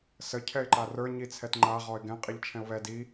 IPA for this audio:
sə cʰɛɪ̯ǃarə˞ ɲit͡sʰɛtŋ͡ǃa ʁɔɪ̯ɡɛ̃ qʼiʎt͡ʃʰɛ̃ʊ̯βɛ di

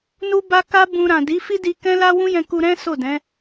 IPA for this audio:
nu˦ba˦ ka˦bũ˧ ɾã˨di˨˦ fi˦di˧kɛ̃˦la˦ wũ˦jɛ̃˧ku˧ ɾɛ̃˦ so˦˨dɛ̃˨˦

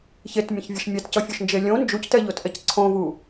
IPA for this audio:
çetmʲə̃çvʲəʃ mʲɛtcʌfʲoʃnd͡ʒe lʲõ nd͡ʒuctɛʎotʔɛc ǀʰõvu

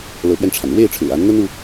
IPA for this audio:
lɤ˧˥pɥɛ˧nʈ͡ʂʰa˩n ɻwe˥˩ɪ̯ʈ͡ʂʰɻ̩˨˩a˧˥nn̪ə˥n u˥

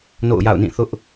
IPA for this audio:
no̰˦˨ʊ̯ja̰˦˨ʊ̯nĩ˦˨ θʊ˦ʔ

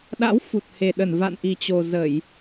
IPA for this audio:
ɗa̰˧˥w fu˨˩t̚he˨˩ɗə˧˩n va̰˧˨nʔi˨˩t͡ɕo˨˩ zə˧˩˨j

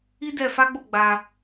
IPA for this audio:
i˦dɛ˧fa˦ɡ͡bo˦˨ ɡ͡ba˧

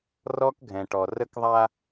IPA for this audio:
rɔ˦kɡʱɛ̃˨ʈɔ˨ rə˦kðˤa˦

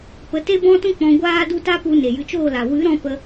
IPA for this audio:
pə˨˦te˦bɔ̃˦tũ˦ k͡pɔ̃˧ ɡʷaː˦du˦ ta˦pu˧ ne˨jɨ˧t͡ʃoː˦˨la˨ wɨ˨˦ɾɔ̃˧ pə˦

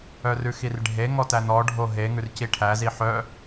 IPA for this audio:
œrʉxirɖʱe ŋɔtænɔ ɖʱoɦe ŋʉrciʈʰæ ziħœ

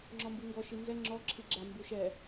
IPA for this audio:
ŋ͡ǁɔmbuŋɡɔ ʃinzɛ ŋ͡ǁɔ ǁʰiɡ͡ǁa mbuʃɛ

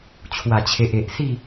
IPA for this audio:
t͡ɕʰwa˨˩t͡ɕʰe˨ʔe˨ʔ si˥˧

